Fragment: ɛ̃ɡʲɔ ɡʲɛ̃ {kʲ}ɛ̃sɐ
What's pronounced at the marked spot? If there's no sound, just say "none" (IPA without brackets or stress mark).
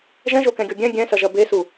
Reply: ɡʲ